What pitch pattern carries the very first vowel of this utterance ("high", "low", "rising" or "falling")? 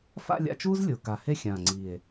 falling